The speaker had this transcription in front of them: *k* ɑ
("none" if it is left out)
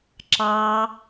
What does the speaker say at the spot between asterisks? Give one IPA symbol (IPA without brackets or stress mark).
ǁ